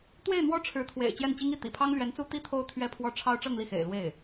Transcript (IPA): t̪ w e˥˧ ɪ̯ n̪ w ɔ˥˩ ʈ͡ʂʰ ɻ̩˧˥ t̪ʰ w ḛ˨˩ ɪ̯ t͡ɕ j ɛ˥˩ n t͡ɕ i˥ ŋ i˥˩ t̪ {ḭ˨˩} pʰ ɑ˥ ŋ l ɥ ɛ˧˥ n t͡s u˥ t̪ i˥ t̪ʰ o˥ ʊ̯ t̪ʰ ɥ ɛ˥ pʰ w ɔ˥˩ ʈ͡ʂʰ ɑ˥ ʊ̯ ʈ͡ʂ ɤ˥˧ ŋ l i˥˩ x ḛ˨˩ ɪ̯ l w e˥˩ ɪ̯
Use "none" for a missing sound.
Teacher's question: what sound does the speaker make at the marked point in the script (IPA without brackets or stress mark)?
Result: ḭ˨˩